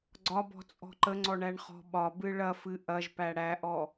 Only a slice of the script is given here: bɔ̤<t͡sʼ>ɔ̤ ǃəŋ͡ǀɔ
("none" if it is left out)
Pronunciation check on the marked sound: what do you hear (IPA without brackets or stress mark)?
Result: t͡sʼ